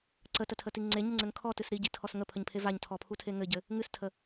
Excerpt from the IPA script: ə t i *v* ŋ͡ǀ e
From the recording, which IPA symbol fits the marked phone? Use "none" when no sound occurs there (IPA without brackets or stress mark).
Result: none